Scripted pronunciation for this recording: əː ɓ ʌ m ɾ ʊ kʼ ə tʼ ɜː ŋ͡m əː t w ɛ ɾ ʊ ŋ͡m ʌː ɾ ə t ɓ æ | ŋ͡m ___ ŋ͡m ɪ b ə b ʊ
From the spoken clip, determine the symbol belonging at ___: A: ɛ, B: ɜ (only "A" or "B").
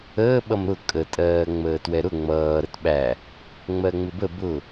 B